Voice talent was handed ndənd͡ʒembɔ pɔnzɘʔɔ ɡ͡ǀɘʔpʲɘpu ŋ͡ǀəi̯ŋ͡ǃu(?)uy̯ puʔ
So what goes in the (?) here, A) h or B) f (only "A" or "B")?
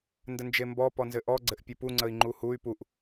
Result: A